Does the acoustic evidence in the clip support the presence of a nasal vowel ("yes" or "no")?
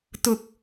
no